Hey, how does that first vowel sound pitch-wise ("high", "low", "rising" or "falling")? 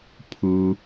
low